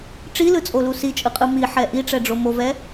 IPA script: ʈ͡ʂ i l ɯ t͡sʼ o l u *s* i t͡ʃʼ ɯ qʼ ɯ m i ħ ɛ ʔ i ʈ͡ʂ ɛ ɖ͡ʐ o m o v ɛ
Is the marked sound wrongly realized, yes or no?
no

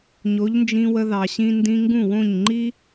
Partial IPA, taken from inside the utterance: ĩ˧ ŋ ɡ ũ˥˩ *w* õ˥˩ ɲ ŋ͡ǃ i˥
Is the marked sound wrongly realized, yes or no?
no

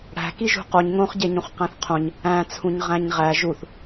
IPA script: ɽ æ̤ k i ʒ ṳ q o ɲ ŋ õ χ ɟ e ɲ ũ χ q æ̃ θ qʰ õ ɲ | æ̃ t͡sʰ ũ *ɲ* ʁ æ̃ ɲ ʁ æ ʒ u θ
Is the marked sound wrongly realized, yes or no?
no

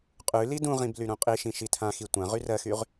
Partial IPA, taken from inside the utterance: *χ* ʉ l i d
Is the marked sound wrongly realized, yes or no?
yes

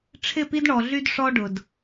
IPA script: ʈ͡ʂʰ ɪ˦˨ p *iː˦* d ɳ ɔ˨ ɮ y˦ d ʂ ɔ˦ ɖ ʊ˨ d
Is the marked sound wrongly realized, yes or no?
yes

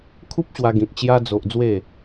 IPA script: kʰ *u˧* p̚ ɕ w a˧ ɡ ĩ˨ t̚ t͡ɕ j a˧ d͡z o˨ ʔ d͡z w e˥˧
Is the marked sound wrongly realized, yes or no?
yes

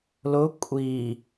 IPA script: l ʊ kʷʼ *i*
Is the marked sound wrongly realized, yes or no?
no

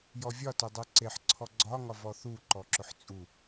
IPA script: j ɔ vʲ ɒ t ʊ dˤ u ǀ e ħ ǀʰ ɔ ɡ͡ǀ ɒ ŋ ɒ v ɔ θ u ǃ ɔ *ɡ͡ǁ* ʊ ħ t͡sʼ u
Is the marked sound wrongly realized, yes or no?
yes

